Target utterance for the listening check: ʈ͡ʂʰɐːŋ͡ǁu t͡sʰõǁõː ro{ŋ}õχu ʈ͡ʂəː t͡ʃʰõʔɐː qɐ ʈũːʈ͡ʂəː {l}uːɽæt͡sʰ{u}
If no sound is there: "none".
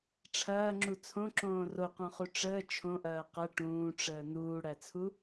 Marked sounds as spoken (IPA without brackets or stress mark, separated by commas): q, n, u